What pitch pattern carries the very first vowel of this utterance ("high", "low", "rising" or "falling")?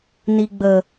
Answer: low